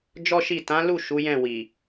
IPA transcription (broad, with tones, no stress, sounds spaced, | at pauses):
d͡ʒ ɔ˦ ʃ i˦˨ t ã˨˦ l u˦˨ ʃ u˨˦ j ɛ̃˦˨ w i˨